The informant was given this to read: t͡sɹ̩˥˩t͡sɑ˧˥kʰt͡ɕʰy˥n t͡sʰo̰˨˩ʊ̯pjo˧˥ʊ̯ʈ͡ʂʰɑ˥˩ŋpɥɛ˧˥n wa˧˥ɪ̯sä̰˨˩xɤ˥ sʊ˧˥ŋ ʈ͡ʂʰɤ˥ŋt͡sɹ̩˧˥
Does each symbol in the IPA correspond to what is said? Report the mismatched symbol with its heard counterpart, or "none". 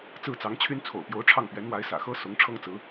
kʰ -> ŋ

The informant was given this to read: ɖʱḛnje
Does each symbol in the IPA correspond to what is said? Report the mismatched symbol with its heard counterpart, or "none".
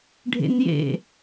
e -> ḛ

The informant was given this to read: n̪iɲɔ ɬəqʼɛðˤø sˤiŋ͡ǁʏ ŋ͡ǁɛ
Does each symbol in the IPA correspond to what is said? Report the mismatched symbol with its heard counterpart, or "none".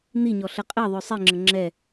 ʏ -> ə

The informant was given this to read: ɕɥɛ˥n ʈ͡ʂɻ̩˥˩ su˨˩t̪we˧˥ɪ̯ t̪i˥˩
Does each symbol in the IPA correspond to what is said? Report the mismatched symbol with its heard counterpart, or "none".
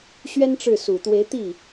none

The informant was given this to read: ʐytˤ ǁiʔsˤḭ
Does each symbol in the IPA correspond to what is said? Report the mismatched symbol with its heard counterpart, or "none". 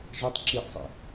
y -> i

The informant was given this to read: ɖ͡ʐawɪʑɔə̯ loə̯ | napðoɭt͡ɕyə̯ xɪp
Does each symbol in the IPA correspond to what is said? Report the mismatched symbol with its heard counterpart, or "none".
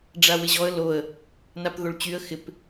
none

